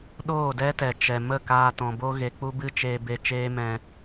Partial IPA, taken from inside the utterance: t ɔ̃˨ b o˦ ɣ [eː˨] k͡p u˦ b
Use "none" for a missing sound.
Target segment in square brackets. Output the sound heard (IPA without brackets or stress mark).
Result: e˨